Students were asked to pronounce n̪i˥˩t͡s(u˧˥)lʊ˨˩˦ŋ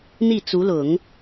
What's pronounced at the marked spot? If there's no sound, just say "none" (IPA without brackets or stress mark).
u˧˥